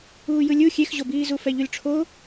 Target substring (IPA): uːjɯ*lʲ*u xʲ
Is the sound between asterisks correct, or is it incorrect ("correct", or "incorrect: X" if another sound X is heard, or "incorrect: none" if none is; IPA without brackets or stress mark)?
correct